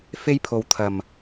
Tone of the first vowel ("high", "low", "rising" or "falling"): high